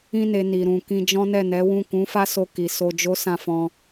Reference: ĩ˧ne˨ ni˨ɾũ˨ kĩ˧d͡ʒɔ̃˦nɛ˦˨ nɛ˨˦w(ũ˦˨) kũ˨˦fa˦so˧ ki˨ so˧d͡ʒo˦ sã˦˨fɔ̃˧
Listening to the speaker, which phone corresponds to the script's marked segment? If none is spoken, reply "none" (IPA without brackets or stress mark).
ũ˦˨